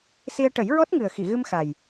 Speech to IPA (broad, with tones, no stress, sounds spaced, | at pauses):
s i˧ ə̯ ʈ ə˨˩˦ j ɹ ɔ˦˥ t̚ ŋ ɨ˨˩ ə̯ x i˨˩˨ ɣ ɨ˧ m x a˨˩ j